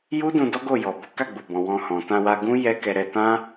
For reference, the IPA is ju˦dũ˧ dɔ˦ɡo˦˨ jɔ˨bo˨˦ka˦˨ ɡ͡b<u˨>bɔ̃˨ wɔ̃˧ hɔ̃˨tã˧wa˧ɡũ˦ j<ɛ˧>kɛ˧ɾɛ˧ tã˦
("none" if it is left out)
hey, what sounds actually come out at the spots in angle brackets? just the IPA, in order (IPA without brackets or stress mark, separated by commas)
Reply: u˨, ɛ˦